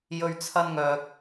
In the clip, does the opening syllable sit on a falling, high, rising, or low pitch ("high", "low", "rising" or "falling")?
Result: high